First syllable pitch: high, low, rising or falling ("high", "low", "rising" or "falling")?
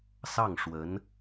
falling